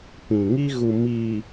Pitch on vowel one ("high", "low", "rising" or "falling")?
low